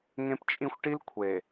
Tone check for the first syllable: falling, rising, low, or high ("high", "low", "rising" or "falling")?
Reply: high